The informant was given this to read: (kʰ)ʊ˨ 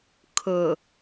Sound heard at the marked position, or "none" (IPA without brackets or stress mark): kʰ